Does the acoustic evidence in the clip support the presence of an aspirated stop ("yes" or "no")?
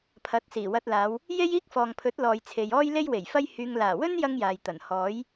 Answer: yes